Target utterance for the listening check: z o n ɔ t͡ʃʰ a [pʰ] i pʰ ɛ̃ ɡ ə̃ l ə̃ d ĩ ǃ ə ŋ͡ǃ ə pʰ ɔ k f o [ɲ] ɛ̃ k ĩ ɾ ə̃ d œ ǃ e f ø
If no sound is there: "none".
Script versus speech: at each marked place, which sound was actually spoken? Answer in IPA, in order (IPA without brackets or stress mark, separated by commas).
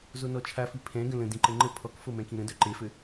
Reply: f, m